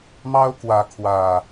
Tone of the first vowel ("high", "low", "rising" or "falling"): high